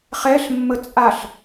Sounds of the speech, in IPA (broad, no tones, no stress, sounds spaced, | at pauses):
χ ɛ ɬ mː ə t͡sʼ a ɬ